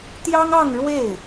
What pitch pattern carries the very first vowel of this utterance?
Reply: high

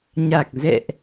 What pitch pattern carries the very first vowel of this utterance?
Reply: low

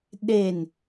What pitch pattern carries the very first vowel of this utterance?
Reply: falling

